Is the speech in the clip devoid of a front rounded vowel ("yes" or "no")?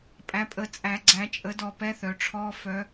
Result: no